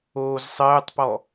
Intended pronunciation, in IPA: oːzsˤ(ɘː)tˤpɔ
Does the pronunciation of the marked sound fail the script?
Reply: no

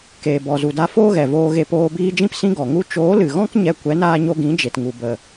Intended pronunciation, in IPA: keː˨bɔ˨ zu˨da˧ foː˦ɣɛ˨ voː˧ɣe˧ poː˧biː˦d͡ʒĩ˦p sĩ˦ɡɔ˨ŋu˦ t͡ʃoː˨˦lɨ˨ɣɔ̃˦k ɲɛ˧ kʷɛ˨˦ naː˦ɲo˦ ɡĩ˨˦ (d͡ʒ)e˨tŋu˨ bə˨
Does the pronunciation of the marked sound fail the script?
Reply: no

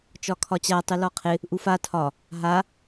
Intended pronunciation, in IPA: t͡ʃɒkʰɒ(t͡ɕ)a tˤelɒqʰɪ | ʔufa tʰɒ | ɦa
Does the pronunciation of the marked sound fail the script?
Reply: no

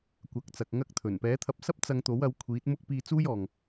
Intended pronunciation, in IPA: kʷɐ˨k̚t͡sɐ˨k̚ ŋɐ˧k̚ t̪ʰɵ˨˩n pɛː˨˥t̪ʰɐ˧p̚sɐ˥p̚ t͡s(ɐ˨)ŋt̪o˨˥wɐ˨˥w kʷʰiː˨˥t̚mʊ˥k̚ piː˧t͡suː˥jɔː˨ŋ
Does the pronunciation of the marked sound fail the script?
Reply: yes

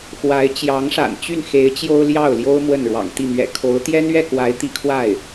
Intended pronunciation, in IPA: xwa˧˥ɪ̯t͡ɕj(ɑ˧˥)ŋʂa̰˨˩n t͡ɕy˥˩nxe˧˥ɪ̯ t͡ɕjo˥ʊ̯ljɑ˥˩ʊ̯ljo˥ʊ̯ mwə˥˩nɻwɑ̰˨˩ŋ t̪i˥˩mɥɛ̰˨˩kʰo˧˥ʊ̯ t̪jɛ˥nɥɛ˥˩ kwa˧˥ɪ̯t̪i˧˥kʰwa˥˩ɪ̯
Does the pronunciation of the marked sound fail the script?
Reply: no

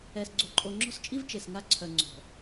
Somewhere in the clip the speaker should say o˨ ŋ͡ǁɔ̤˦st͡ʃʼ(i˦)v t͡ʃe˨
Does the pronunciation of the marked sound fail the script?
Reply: no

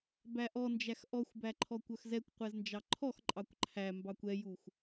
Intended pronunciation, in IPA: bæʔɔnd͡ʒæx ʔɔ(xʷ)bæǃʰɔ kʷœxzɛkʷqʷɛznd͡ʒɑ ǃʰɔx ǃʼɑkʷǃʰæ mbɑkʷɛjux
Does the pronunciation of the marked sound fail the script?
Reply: no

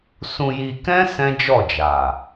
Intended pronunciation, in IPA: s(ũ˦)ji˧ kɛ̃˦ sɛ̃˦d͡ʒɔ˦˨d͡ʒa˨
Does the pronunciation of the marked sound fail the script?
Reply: yes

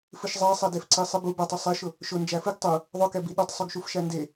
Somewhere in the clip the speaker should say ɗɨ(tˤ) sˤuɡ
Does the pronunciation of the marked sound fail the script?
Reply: no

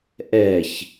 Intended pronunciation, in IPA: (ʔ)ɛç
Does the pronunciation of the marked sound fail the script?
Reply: no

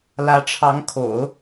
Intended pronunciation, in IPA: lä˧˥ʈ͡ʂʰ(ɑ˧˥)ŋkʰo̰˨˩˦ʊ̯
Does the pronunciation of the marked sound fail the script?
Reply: no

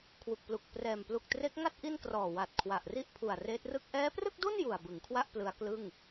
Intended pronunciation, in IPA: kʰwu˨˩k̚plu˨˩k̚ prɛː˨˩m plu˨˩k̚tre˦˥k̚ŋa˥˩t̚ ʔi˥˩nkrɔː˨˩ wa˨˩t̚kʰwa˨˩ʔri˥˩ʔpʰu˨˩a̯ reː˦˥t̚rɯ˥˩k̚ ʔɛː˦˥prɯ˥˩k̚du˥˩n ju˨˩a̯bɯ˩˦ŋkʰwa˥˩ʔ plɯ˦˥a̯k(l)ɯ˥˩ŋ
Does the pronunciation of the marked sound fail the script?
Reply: no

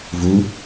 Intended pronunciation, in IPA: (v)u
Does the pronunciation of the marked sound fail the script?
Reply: no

